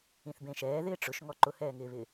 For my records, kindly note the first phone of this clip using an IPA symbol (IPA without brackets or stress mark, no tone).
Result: ĩ